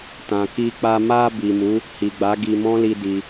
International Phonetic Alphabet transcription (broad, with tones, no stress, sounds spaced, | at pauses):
t ã˨ k i˧ k͡p a˧ m a˧ b i˨ m u˨˦ | h i˨ ɡ͡b a˨˦ ɡ i˧ m ɔ̃˦ l i˧ d i˧